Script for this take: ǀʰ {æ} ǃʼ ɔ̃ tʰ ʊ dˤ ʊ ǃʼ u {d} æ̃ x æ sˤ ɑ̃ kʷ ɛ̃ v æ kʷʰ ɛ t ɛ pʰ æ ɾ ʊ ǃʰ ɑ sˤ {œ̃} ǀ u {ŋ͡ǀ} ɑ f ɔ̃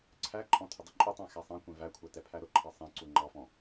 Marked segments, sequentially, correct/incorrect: correct, incorrect, incorrect, incorrect

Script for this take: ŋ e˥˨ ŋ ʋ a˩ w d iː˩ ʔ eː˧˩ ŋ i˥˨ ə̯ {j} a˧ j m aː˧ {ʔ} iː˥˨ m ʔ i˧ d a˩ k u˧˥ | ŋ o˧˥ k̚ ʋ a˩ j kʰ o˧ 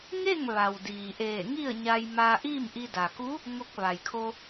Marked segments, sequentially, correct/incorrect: incorrect, correct

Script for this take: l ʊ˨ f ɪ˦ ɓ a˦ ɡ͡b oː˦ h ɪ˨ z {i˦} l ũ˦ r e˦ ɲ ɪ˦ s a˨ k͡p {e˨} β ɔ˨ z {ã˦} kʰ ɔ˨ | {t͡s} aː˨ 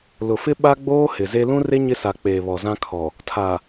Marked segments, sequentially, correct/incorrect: incorrect, incorrect, correct, incorrect

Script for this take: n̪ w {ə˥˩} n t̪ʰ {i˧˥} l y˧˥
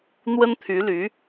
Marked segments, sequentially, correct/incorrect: incorrect, incorrect

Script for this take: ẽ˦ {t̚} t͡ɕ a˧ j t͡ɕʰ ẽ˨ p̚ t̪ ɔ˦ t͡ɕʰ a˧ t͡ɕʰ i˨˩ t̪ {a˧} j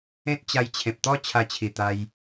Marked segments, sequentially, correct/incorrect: correct, correct

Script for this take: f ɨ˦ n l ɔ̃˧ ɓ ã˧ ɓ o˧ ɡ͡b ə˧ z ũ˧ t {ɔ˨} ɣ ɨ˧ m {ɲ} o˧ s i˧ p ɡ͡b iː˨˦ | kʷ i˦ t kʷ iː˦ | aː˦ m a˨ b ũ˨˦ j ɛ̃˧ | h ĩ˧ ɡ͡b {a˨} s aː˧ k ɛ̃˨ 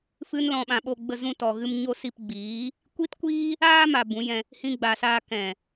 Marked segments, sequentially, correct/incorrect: correct, correct, correct

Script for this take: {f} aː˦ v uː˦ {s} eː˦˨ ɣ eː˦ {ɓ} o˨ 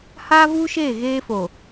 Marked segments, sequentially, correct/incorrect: incorrect, incorrect, incorrect

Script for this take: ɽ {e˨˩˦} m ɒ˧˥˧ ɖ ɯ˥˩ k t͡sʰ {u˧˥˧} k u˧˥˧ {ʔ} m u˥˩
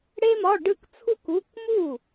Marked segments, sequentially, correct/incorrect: incorrect, incorrect, incorrect

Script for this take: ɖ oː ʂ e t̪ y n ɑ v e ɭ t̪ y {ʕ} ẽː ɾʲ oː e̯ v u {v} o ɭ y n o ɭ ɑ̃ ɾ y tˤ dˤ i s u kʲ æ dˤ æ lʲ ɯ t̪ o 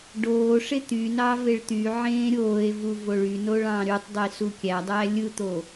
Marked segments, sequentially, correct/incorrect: correct, correct

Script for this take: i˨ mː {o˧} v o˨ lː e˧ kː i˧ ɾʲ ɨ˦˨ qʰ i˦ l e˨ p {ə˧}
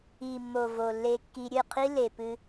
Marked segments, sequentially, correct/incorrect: incorrect, incorrect

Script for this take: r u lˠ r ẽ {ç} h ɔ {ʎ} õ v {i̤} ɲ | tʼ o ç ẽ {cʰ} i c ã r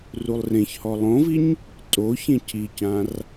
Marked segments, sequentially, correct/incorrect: correct, incorrect, incorrect, correct

